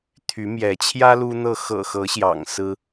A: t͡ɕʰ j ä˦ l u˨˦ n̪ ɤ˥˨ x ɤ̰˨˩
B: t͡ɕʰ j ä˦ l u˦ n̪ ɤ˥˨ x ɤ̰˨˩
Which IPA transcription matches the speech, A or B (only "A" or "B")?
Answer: B